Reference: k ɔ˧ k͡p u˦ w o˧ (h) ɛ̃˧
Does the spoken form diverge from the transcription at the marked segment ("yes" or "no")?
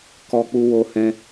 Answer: no